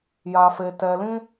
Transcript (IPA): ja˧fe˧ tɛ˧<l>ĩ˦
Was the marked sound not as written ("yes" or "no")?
no